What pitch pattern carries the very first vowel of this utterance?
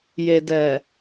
low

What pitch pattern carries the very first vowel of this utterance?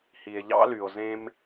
low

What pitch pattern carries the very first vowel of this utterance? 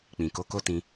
low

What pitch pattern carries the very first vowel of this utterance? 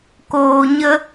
low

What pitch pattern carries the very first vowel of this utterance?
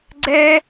high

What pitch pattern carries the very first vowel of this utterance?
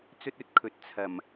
high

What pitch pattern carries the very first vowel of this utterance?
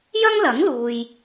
high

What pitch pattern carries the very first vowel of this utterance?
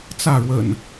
falling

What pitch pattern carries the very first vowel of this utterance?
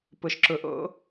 low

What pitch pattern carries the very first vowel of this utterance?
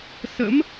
rising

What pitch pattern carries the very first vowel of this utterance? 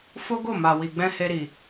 high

